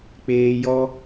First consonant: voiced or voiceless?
voiceless